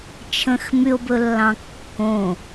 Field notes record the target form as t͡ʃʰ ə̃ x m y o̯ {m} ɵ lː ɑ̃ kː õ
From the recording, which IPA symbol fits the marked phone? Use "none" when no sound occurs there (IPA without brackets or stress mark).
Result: b